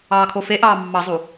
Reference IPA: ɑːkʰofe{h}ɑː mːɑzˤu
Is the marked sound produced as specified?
no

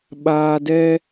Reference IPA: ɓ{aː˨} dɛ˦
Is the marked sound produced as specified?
yes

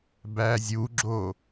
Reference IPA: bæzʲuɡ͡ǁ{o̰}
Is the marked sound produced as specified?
no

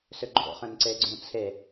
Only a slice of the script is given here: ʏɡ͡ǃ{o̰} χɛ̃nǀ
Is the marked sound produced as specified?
yes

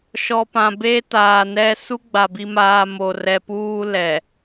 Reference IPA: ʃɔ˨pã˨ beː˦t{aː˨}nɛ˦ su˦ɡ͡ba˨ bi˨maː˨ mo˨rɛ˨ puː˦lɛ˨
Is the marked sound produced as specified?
yes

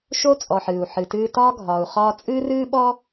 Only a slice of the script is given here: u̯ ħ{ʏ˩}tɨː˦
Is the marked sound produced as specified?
no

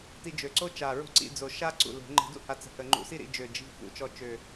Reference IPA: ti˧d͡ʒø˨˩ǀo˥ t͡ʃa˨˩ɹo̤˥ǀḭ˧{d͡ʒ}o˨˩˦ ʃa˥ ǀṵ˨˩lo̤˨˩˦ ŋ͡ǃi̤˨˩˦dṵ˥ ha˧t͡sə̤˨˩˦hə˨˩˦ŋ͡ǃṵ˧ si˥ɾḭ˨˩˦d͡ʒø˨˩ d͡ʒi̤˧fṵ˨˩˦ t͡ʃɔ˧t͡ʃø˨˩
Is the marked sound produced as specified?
no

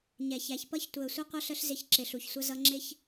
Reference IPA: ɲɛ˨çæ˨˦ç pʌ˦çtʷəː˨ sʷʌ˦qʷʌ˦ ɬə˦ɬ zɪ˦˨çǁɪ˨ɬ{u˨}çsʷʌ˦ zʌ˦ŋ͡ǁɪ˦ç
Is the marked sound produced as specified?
yes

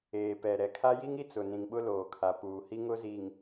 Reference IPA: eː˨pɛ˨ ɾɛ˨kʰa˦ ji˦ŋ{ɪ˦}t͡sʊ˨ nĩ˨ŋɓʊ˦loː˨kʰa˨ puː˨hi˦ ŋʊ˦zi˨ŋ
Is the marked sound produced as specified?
no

